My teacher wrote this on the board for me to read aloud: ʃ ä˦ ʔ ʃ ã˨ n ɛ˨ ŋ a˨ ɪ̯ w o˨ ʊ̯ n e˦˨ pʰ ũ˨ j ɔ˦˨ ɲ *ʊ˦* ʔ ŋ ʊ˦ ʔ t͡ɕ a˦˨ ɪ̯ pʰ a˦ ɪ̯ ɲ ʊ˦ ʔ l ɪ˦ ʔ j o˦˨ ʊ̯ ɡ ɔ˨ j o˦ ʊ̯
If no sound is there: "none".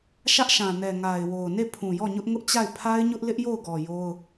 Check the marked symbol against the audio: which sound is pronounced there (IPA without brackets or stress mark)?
ʊ˦